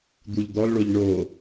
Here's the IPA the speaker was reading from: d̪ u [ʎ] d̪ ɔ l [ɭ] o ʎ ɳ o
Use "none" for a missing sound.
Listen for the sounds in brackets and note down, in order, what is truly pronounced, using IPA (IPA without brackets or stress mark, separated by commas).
ʎ, ɭ